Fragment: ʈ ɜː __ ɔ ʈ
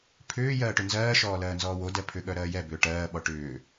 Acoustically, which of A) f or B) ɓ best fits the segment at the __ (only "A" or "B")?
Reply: B